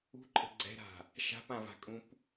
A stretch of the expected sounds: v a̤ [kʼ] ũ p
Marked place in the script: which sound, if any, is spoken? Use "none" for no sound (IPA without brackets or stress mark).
kʼ